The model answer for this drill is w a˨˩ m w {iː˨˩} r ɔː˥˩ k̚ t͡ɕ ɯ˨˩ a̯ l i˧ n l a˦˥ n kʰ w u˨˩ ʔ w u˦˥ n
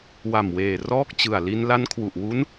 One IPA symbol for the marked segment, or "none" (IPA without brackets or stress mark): eː˨˩